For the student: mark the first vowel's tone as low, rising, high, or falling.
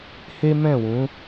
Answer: high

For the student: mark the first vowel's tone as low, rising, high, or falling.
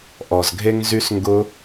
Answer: low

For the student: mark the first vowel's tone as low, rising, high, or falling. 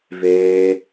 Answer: high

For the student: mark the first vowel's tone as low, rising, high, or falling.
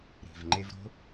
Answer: low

